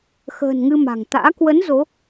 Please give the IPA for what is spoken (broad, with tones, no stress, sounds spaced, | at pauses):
x ə̤ː˨˩ n ŋ ɨ˧ m a̤˨˩ ŋ t̪ a̰ː˧˥ k w ə˨˦ n z o˨˦